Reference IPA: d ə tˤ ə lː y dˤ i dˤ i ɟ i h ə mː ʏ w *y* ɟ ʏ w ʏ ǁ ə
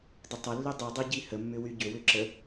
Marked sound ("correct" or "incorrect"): correct